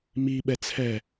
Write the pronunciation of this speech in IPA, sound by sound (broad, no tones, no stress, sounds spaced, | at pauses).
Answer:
m i ɓ ɛ t͡sʰ ɛ